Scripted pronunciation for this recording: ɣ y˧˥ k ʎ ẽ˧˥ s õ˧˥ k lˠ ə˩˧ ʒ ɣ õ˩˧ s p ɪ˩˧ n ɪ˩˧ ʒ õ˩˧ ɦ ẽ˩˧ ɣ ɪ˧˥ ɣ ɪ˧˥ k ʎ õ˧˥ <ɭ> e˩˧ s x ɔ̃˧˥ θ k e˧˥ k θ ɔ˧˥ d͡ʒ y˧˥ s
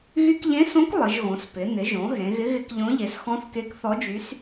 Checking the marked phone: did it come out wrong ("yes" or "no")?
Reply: yes